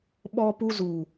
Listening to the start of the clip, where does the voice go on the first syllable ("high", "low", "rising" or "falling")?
high